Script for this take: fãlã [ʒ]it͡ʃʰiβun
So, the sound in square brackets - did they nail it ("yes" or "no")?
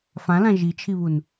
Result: yes